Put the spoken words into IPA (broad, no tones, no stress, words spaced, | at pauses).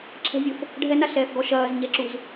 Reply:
ǁʰɛ̤vʲof | ɖʱɛnaɬɛːfɡɔ ʃɐːzɲɛǁuz